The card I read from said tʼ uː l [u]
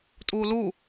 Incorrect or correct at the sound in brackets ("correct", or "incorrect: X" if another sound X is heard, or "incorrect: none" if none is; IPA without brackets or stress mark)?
correct